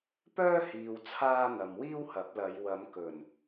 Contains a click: no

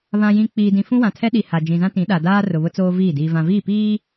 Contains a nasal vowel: yes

